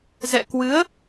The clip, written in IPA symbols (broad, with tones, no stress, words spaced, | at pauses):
zɛ̰˧˨kwɨ˨˦ə̯